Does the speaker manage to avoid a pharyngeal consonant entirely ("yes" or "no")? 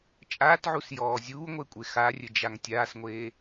no